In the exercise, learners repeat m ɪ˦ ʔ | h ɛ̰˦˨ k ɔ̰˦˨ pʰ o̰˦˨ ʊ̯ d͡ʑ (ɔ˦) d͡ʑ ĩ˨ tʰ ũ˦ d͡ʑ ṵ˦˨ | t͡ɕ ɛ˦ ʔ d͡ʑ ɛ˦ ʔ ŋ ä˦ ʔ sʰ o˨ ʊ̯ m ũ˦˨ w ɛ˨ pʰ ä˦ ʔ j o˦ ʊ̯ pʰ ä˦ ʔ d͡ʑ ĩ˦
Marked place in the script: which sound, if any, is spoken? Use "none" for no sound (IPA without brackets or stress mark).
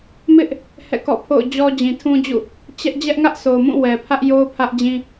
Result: ɔ˦